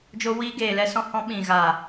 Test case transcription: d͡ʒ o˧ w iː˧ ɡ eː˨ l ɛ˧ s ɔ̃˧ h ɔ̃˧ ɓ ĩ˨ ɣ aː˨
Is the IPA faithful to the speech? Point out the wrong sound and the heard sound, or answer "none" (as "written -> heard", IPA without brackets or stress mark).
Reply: none